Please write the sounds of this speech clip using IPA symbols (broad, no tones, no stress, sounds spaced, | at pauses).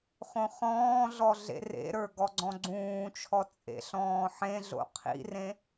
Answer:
χ õ χ ɔ̃ː ɮ ɔ ɮ ḛ r ḛ ɾ ə˞ ɡ ɔ ɡ͡ǀ ɔ̃ ɡ͡ǀ ũː t͡ʃʰ ɔ t͡sʼ ḛ ɬ ɔ̃ː ħ ẽ ɮ o̰ qʰ ḭ r ẽ